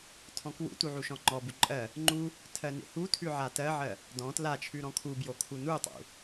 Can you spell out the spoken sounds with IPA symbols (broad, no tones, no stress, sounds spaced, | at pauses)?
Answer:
tʰ ɔ̃ k w ṵ t u ʕ u ʃ ɔ̃ ŋ͡ǃ ɔ b u ǃʼ ɜ | ŋ͡ǃ u | tʰ ɜ n ḛ h u tʰ ʉ ʕ a t ɜ ʕ ɜ | d ɔ̃ t l a t͡ʃʰ ʉ ɾ ɔ̃ kʰ u b j o kʰ u n u tˤ ṵ